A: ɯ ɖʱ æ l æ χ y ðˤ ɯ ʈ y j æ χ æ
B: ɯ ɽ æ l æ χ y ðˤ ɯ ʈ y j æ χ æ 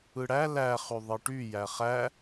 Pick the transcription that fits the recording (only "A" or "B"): B